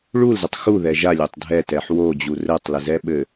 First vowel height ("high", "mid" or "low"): high